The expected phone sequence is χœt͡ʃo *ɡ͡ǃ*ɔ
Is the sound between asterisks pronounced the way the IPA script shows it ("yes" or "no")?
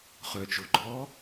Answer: yes